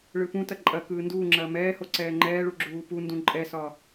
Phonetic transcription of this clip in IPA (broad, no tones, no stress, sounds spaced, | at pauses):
ɭ ɯ p ũ t ɐ ǃʼ ɐ k ɯː n d uː ŋ͡ǁ ɐː m ɛː h o ǀ ɛː ŋ͡ǃ ɛː ɭ u ɡ͡ǁ uː p u n d ũ ǃʼ ɛ s ɒ